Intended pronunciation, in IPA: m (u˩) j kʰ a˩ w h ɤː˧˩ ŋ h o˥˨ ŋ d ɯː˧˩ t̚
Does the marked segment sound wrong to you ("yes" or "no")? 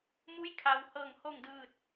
yes